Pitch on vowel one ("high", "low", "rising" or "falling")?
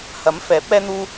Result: rising